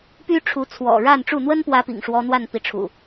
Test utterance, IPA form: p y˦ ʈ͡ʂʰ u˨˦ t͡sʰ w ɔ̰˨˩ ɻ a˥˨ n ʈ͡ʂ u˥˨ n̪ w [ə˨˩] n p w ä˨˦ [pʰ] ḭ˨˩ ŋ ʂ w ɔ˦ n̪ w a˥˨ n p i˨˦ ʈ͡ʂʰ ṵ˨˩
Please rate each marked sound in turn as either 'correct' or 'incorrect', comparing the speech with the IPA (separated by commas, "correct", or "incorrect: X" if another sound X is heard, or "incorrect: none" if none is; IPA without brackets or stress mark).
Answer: incorrect: ə˦, incorrect: p